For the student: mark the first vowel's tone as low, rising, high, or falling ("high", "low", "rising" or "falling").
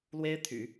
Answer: high